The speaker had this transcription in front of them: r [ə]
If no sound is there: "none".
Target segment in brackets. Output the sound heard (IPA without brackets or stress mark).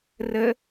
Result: ə